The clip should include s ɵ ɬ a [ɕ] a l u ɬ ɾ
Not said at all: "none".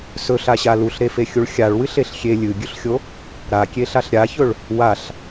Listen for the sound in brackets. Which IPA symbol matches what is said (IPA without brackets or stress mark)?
ɕ